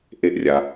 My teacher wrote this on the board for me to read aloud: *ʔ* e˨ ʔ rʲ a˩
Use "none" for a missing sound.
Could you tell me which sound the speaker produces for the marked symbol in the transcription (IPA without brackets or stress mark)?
ʔ